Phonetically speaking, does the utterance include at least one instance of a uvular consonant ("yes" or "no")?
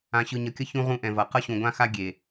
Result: yes